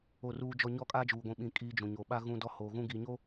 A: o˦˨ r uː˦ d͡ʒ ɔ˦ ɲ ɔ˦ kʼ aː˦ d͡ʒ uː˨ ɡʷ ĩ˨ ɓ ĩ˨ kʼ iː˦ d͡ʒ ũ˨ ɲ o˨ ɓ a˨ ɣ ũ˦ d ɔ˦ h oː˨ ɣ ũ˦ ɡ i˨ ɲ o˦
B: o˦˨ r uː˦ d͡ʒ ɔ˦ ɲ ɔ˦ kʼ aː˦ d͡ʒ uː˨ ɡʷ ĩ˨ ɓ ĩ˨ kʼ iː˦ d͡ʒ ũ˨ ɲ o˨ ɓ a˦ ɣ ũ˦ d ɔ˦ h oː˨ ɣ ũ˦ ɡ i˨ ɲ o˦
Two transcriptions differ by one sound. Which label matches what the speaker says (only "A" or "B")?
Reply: B